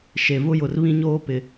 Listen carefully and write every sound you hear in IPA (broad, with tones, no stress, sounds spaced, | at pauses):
ʃ e˨ v ʊ˦ j ʊ˨ r β ĩ˦ ɲ oː˦ p ɪ˨